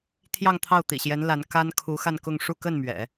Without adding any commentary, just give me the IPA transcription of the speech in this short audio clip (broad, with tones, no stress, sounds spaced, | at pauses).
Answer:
t̪ʰ j ɑ˥˧ ŋ t̪ʰ ɑ˥˩ ʊ̯ t̪ ḭ˨˩ ɕ j ɛ˧˥ n l a˧˥ n k a˥ n kʰ u˧˥ x a˥˧ n k ʊ˥˧ ŋ ʂ u˥˧ k ə˥˩ n m ɥ ɛ̰˨˩˦